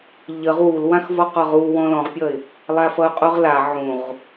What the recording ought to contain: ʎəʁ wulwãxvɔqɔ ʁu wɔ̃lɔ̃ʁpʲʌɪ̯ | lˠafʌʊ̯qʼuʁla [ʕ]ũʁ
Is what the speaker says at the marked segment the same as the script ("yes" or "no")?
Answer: yes